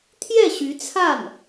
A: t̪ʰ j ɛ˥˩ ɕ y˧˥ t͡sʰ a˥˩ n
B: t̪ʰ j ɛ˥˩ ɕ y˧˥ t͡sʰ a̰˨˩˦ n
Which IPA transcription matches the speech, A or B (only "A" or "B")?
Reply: A